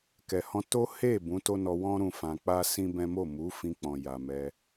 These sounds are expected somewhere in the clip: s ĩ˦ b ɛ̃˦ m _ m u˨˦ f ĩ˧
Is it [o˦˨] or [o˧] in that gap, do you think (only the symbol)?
o˦˨